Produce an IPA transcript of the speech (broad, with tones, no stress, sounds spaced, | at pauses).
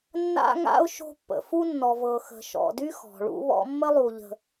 nː a̰˥ ŋ a̰˥ ʊ̯ ʃ o̤˦ pː ə̰˨ f u˥ nː ɔ˨ v ɤ˨ x ə̤˨ ʃ ɔ̰˨ d y˥ x ɔ̤˩ ɭ ṵ˦ β ɔ̰˦ mː ə˥ lˠ u˨ ʎ ə̤˨